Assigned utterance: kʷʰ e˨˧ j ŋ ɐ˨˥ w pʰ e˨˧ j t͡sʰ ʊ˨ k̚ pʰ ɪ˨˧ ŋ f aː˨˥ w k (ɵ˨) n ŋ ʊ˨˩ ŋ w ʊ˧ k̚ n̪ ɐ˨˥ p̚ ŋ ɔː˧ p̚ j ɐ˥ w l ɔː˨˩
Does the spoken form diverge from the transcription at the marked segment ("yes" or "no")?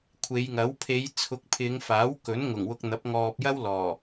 yes